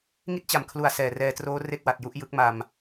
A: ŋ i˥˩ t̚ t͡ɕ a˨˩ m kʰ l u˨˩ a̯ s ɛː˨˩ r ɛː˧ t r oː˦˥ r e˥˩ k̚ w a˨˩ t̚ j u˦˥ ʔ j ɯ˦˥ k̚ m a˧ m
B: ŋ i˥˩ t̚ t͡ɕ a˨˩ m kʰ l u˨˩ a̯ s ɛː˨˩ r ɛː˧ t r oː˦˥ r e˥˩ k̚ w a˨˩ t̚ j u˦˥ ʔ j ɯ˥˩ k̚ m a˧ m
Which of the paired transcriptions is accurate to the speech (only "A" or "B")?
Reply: A